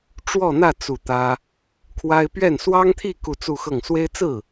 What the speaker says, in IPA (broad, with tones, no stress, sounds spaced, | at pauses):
ʈ͡ʂ w ɔ˥˧ n̪ ä˥˧ t͡s u˥˩ t̪ ä˥ | kʰ w a˥ ɪ̯ p ɥ ɛ˥˩ n s w ɑ˥ ŋ t̪ʰ i˥˧ k u˥˧ t͡s u˥˧ x ɤ˥˩ ŋ s w e˥ ɪ̯ t͡s ɹ̩˥˩